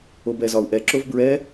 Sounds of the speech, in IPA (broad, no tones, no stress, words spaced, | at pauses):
obɛzɒu̯ʔɛ ǁovbɹɛ